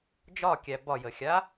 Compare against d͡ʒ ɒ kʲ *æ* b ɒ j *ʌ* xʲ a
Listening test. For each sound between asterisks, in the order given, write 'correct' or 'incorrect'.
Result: correct, incorrect

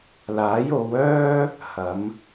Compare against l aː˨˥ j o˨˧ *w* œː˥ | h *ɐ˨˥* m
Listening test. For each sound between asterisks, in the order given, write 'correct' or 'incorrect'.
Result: correct, correct

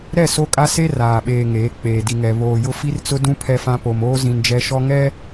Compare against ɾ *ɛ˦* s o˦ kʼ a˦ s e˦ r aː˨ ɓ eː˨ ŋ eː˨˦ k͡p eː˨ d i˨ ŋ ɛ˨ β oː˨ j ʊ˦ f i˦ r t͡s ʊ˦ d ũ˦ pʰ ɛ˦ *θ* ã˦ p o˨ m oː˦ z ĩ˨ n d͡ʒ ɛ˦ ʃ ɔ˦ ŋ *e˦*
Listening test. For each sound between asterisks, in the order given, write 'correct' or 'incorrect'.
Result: incorrect, incorrect, incorrect

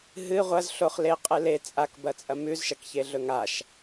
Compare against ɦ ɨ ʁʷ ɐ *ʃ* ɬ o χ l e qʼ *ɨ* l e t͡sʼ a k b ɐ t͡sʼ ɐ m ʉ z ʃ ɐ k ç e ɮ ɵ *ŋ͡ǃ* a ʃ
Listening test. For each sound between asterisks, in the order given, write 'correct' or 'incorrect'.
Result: incorrect, correct, incorrect

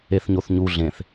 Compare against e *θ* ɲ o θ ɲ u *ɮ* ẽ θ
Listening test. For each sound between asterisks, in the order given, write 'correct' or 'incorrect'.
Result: correct, correct

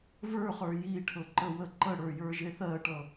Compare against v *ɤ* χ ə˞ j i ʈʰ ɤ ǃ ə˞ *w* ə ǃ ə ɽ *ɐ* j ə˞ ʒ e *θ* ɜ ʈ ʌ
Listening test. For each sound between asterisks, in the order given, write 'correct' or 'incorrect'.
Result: incorrect, correct, incorrect, correct

